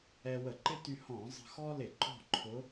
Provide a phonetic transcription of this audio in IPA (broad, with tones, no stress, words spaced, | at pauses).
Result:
ɛ˧wə˧˩˧ǃɪ˥ ty˧hɔ̃˧˩˧ zˤə̤˧xɔ˥ lɪ˧˩˧ǃɔ̤˥˨ǃʰʊ˧˥